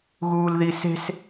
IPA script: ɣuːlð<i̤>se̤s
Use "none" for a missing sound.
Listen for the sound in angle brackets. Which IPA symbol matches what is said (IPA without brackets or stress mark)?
i